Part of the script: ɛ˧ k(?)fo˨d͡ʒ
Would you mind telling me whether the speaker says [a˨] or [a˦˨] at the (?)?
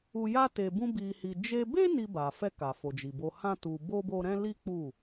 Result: a˨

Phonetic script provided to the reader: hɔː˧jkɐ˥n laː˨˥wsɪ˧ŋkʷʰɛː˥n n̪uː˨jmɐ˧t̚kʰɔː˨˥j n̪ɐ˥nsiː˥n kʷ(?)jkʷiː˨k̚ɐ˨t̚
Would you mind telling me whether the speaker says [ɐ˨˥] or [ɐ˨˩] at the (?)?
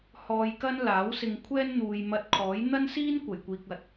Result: ɐ˨˩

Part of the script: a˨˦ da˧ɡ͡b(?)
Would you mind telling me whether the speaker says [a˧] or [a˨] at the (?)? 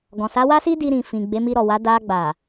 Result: a˨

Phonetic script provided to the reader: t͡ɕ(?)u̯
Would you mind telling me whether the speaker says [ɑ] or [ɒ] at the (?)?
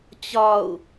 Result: ɒ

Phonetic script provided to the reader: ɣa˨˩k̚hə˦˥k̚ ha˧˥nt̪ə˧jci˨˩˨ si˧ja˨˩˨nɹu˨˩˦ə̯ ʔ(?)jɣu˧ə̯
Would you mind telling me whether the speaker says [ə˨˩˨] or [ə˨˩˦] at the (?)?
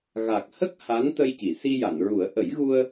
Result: ə˨˩˦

